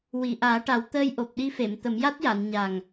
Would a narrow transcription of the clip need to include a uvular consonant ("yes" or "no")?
no